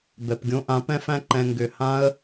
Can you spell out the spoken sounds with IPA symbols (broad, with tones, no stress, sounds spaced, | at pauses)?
b ɛ˨ p ɡʲ õ˧ ʔ ã˨˦ p ɛ̃˦ f æ̃˦ ǃ ɛ̃˧ ŋ ɡ ʏ˧ h ã˦ ə̯